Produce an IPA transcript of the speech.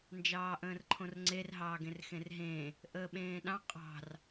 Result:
n d͡ʒ ɑː ʔ ə̃ː r ǃʰ õ r ŋ͡ǀ e r ɦ ɑː ɡ ẽ r x ẽ r ɦ ẽː | ʔ əː ɓ ẽː ɗ ɑ̃ qʼ ɑ̤ r

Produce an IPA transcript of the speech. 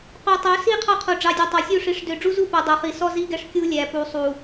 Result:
q o˨ tˤ ø˨˦ s i˦ qʰ ɑ˦ qʰ o˨ ɖ͡ʐ ɑ˨ dʲ o˨ tˤ ɑ˨ sʲ u˦˨ ʂ i˨ ʂ d ø˨ ɖ͡ʐ u˦ z u˦˨ p o˨ dˤ ø˨ χ i˨ s ɔ˦ z i˦ ɡ ɛ˦ ʂ kʲ u˦ lʲ æ˨ p u˨ sˤ u˨

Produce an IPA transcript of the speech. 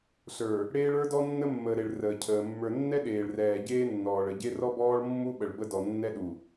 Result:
ɬ ə˞˨ | ɽ eː˦ ɭ ə˞˦ d ɔ˦ nː ə˦ mː əː˨ ɾ e˨ ɭ r əː˨ cʰ əː˨ mː ə˞˨ nː ɛ˦ ɗ eː˨ ɭ r ɛː˨ ɟ eː˦ nː ɔː˨ ɭ ə˨ ɟ e˦ r ɔ˦ b ɔː˦ ɭ mː u˦ ɓ ə˨ ɭ b ə˦ d ɔ˨ nː ɛ˦ ɗ u˨

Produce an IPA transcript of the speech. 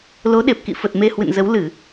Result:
l o˨˦ ɗ e˨˩ p̚ k ḭ˧˨ f ə˨˩ t̚ m e˧ h w ɨ̰˧˨ n z ə˨˦ w l ɨ˧˩˨

